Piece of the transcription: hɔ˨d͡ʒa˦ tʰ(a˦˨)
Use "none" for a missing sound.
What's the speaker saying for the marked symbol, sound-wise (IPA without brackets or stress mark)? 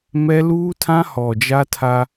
a˦